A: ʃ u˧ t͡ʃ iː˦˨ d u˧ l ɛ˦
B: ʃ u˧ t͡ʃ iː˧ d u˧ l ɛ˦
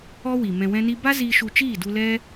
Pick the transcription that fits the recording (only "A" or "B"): A